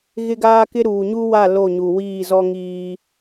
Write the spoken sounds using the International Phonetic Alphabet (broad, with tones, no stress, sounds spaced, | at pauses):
ɣ ɪ˦ ɡ aː˦ k ɪ˦ ɾ uː˨ ɲ u˦ w a˦˨ l o˦˨ ɲ u˨ w iː˦˨ z ɔ˦ ŋ iː˦